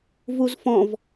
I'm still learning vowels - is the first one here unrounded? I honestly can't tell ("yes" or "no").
no